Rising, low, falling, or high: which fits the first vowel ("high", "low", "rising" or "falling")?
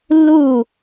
falling